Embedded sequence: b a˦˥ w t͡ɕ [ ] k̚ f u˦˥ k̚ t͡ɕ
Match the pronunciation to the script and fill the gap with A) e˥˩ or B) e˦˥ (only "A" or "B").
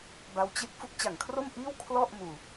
B